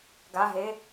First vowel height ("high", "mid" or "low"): low